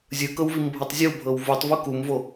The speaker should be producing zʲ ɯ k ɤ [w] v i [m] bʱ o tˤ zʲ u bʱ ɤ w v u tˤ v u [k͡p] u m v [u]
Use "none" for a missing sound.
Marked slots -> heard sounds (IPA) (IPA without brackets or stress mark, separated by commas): w, m, k, o